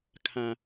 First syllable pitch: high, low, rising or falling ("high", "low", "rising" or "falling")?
low